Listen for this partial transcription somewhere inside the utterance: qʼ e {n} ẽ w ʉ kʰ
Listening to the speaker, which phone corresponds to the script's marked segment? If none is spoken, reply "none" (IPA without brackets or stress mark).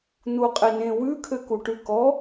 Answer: n